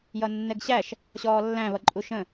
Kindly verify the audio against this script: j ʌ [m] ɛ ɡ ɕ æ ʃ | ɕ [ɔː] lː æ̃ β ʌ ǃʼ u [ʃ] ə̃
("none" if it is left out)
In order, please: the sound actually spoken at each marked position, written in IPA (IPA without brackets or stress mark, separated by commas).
nː, ɔː, ʃ